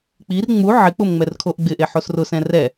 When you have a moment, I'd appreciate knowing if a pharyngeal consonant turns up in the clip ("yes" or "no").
yes